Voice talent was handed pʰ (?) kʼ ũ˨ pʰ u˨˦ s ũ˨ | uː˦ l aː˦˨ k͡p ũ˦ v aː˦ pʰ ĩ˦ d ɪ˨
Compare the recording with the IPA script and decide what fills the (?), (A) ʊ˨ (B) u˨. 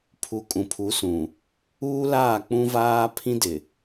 B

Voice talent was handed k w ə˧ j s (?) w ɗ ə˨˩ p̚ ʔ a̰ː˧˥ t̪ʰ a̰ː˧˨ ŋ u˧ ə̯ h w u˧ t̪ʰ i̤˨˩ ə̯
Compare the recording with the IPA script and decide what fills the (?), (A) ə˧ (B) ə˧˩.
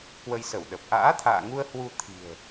B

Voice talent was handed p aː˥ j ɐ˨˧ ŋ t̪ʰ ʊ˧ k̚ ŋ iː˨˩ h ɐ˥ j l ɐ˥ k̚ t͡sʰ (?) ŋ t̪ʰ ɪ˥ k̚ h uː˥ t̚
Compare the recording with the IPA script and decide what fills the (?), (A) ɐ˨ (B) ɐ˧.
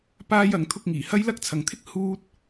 A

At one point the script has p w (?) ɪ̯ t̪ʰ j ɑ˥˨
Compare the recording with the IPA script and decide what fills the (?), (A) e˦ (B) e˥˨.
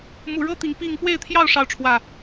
B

